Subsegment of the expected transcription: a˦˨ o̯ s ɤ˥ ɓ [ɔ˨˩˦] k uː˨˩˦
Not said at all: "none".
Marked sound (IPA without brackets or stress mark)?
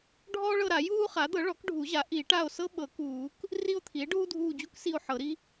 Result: ɤ˨˩˦